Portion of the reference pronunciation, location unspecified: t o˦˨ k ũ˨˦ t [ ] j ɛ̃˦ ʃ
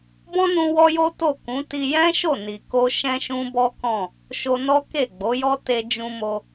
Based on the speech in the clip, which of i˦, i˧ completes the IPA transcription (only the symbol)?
i˧